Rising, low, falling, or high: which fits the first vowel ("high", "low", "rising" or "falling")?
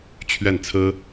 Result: falling